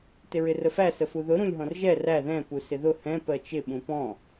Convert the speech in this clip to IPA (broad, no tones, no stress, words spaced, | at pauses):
tɪɹɪrəfæ səfuðʊ ɾũlʲɦɔ̃rʒɛ ræ ðɛ̃ pusɪðʊ hɛ̃ pɜt͡ʃɪ ɓũpɔ̃